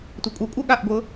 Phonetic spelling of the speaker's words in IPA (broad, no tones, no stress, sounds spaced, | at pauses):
tʷ ɤ kʷʼ ɤ kʷʼ ɤ ɠ a ʔ ɡʷ ɤ